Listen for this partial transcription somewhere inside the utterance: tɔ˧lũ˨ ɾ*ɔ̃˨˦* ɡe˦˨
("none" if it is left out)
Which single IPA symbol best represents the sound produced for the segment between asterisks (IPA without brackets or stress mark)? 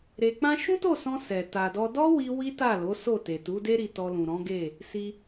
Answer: ɔ̃˨˦